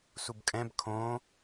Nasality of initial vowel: oral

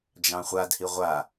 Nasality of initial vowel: nasal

